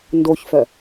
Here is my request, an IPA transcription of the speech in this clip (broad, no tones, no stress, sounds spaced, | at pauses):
n d o ç f œ